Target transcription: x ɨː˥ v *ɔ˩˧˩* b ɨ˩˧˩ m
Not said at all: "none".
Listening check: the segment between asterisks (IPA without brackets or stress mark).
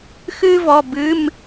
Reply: ɔ˩˧˩